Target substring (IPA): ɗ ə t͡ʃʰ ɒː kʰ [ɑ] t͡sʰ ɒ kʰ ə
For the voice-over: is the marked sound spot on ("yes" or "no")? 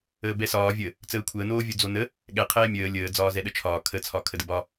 no